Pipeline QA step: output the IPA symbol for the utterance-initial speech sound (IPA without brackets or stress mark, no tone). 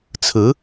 t͡sʰ